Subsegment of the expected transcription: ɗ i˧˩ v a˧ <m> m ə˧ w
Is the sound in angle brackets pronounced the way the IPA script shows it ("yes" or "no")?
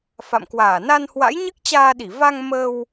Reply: no